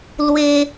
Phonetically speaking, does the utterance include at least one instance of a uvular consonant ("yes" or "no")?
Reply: no